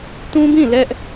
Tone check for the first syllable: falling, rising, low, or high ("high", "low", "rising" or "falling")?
high